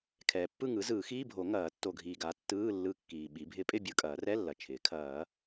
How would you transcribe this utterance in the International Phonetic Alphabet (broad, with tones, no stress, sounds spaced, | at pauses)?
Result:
kʰ ɛː˨ pː ɯ˥˨ ŋ ɯ˩˥ z ɯː˨˩˦ x iː˧˥˧ bʱ o˨˩˦ ŋ ɐː˨˩˦ tː o˨ ɡʱ iː˨ ɡ a˩˥ tː ɯː˧˥˧ lː ɯ˧˥˧ kː iː˨ ɓ i˩˥ bʱ ɪ˨˩˦ pʼ ɪ˥˨ bʲ ɯ˥˨ kʼ ɐː˨˩˦ r ɛ˧˥˧ lː ɐ˨ t͡ʃʰ ɪː˩˥ kʰ ɐː˨˩˦